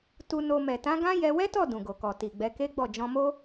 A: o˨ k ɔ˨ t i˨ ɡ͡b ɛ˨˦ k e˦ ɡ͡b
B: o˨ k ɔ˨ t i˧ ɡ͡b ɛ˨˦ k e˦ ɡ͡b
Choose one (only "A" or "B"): A